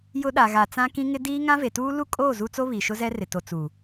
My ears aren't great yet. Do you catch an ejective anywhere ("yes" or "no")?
yes